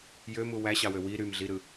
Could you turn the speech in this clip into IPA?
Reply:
jømu wæɕɑwø wi ɾymɮiɾɯ

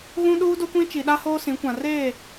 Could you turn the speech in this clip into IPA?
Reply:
ɣũ˦ɗuː˦do˦ kʷĩ˦t͡ʃi˨ ɗa˦hoː˦sĩ˨˦kʷã˨ reː˦˨

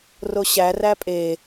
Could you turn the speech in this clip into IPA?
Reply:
roɕæ ræpʼe

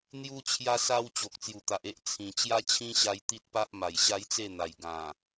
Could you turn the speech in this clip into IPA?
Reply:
n̪ju˧t͡ɕʰja˧ sa˧w t͡ɕo˨k̚t͡sju˨˩t̪a˨ʔe˦ʔ t͡sʰĩ˨˩ t͡ɕja˦ t͡ɕʰĩ˦ɕa˧j t̪i˦t̚pa˦ʔ ma˨˩jɕa˦jt͡se˥˧n̪a˨˩j ɡã˨˩

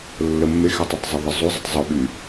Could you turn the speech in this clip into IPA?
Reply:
lːəmːexɛtˤutˤ zˤəðˤəzˤuzˤətˤ zˤuɓy

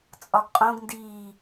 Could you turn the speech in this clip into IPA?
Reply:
t͡sʼɒɡqʼõɡndiː

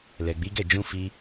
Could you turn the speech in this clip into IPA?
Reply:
lɛ˨ɡ͡bi˨˦ɡɛ˦˨ d͡ʒũ˧fi˧

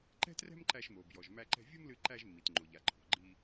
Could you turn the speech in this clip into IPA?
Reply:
ǃɛ̤˥trɛ̤˥mǃæ˧ʃmo˩ bjɔ˩ʒmæ˧ǃɛ̤˧ vʲo˥mlɨ˧ǃæ˧ʒmːi˩t ŋ͡ǃo˩ʎa˩ǃʰo̤˩ɡ͡ǃi˧

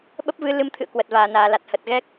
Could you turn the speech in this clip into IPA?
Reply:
ɓə˦˥p̚vɨ˨˦ lɨ˨˦mt̪ʰɨ̰˧˨ə̯ kwə˨˩t̚vaː˨˩naː˨˩la˨˩t̚ hə˨˩t̚ɣɛ˦˥k̚

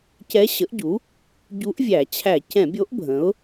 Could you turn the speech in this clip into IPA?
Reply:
cɛ˧˥ɕə˩˥ʔɟu˩˥ | ɟu˧˥ʔ vʲæ˧˩˧ t͡ɕʰæ˧˩˧cɛ̃˧˩˧bʲo˧˥ʔ bʱə̃˩˥ʊ̯

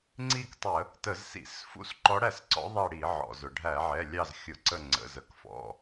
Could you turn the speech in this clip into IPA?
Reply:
ŋ͡ǀi˦˨k tˤə˧˩˧ | tə˧˩˧zsḭ˧˩˧s fṵ˧˥s ǃɔ˧˥ɽæ˦˨sǀɔ̰˧˥ ðˤɛ˦˨ɽi˧˩˧ ʕɔ̰˩zʊ˩ ɖʱæ˧˩˧ʕɛ˩˧˩lʲɑ˦˨z xʲʊ˧˩˧ǀə˦˨ ŋ͡ǀə̰˩˧˩z ə˧˥˧kfɔ̰˩˧˩

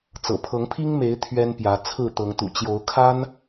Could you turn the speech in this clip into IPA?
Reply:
t͡sɤ̰˨˩pʰɤ˨˦ŋpʰi˦ŋme˨˦ɪ̯ t̪ʰɥɛ˦npjä˨˦ t͡sʰɹ̩˥˨t̪ɤ˨˦ŋt̪ṵ˨˩ t͡ɕjo˨˦ʊ̯kʰa˦n

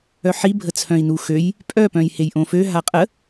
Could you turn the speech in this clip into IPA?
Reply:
œħi bʱət͡sʰœ̃i̯nuxøj | pʼœ pœ̃jhejʔõfø ɦaqʼə

